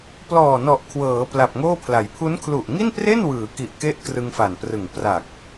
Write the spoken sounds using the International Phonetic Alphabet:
plɔː˨˩nɔ˨˩ʔ kʰwɤː˩˦ pla˨˩p̚ŋoː˥˩pʰla˩˦j pʰu˦˥nkʰlu˨˩ʔŋi˥˩npre˥˩n wɯː˩˦ki˨˩ʔke˦˥ʔ krɯ˧ŋfa˨˩nprɯ˨˩ŋ pra˨˩k̚

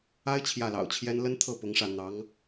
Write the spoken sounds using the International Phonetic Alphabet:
a˥ɪ̯ t͡ɕʰjä˥˩lɑ̰˨˩ʊ̯t͡ɕʰjɛ˥n lə˥nt̪ʰɤ˥˩ pʊ˧˥ŋʂä˥˩ n̪ɑ˧˥ŋ

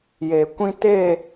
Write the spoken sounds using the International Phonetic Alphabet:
je˨kʷĩ˦te˦˨

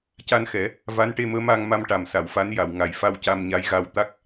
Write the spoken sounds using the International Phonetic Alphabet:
ca˧nxɛ˨˩˦ | va˧˥nʈe˧məː˧˥ ma˧ŋma˧mʈa˨˩m sa˨˩˨wfa˧˥n ja˨˩˨w ŋa˨˩jfa˧w ca˧mɲa˧˥jɣa˧w t̪a˦˥k̚

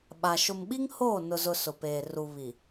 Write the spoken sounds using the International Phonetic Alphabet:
ɓa˨ ʃʊ˨mɓi˦ŋ hoː˦˨nʊ˨zʊ˨ sʊ˨peː˨ ru˨ βi˨

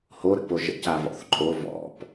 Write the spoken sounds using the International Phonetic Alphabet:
hoɾə̰po ʒə̰cavɔ̰θ ǃʼo vɔ̰p

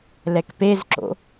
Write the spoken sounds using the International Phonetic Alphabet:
lɛkpezǁo̰

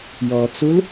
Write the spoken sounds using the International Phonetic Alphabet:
jɔt͡sul

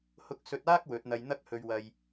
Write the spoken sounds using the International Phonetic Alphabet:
hʊ˧k̚sɵ˧t̚aː˥k̚ wɵ˨˥t̚n̪ɐ˧j n̪ɐ˥k̚hɵ˧ɥ wɐ˧j

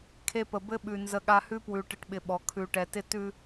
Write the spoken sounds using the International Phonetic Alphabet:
kʰe˦pə˨ bɘ˦ɓʉ˨ nzə˦ɠa˦ hʉ˦pwʉ˨ʈɪ˨ʈɓɪ˨ ɓɔ˨ kʰʉ˨ʈɛ˨tɪ˦ tʉ˦

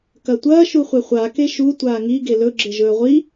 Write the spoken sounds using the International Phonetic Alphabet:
kɐtʷɐː ʃuχʷeχʷa keʃu tʷaːŋi ɡelɵ ɡ͡ǁeʒɵːʁʷi

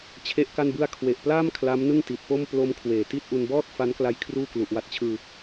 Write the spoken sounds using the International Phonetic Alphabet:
t͡ɕʰe˥˩ʔka˥˩nbɯ˥˩a̯ kʰwe˨˩ʔplaː˥˩m kʰla˦˥mnɯ˥˩ŋ ti˨˩t̚po˥˩m plo˦˥m kʰweː˩˦ ti˥˩t̚ ʔu˧nbɔː˥˩t̚fa˦˥nkla˦˥j kʰruː˥˩klu˨˩ʔwa˦˥t̚t͡ɕʰɯː˧

